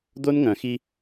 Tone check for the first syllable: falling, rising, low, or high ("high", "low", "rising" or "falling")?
high